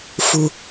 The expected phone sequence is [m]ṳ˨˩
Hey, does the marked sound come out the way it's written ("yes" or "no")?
no